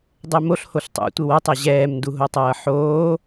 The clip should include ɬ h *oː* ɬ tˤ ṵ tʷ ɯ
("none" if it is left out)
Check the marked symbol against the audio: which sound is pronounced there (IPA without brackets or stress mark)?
o